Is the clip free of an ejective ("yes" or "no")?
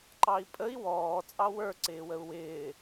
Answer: no